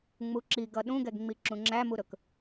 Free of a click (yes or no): no